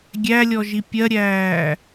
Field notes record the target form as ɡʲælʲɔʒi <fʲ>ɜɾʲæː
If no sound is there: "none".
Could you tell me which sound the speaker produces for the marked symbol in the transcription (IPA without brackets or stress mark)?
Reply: pʲ